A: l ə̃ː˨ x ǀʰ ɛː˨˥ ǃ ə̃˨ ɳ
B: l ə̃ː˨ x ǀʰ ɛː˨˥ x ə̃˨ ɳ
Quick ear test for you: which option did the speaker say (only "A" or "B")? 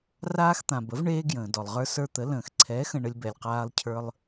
B